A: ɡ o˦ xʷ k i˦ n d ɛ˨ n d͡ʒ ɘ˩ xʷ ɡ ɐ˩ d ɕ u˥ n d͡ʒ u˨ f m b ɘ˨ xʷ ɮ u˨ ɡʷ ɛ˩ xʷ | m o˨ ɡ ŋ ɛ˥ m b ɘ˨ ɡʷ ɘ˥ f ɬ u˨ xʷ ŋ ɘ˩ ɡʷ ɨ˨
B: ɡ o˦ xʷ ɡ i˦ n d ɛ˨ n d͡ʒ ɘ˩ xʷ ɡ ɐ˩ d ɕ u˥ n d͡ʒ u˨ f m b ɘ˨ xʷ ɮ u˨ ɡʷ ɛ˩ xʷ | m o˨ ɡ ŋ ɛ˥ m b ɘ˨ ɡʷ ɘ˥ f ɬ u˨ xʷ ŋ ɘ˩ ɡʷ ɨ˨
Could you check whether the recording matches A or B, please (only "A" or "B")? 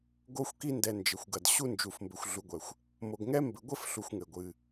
A